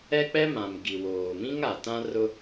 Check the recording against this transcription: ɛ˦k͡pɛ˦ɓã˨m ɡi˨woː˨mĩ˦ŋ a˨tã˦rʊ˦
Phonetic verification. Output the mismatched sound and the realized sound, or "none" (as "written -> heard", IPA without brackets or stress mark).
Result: ɓ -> m